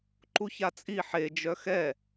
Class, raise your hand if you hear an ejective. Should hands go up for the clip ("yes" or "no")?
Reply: yes